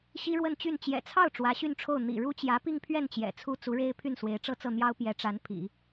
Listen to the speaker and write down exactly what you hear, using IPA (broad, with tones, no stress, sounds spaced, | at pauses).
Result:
ɕ i˥ ɻ w ə˥˧ n t͡ɕ y˥˩ n t͡ɕ j ɛ̰˨˩ t͡sʰ ɑ˥˩ ʊ̯ ʈ͡ʂ w ä˧˥ ɕ y˥˧ n ʈ͡ʂʰ o˥˩ ʊ̯ n̪ ḭ˨˩ ɻ u˥ t͡ɕ j ä˧˥ p i˥˧ ŋ pʰ ɥ ɛ˥˩ n t͡ɕ j ɛ̰˨˩ t͡sʰ u˥ t͡s u˧˥ ɻ e˥ ɪ̯ pʰ y˥˩ n s w e˧˥ ɪ̯ ʈ͡ʂ ɤ˥˧ t͡s ɤ˥˩ n̪ j ɑ˥ ʊ̯ p j ɛ˧˥ ʈ͡ʂ a˧˥ n pʰ ḭ˨˩˦